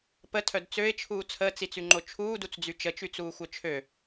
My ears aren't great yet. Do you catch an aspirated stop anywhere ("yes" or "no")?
yes